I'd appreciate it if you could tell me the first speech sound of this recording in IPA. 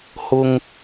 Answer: h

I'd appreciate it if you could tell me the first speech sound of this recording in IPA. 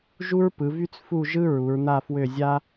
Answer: ʒ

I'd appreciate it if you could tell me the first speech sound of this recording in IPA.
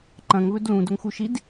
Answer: ǃ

